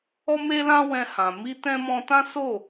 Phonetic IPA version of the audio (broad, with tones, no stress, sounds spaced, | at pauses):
ɔ˦ m e˦ l ã˦ w ɛ̃˦ h ã˧ m i˦ t ɛ̃˦ m ɔ̃˦ t ã˦ s o˦˨